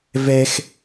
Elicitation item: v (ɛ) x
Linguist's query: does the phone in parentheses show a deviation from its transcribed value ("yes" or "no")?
no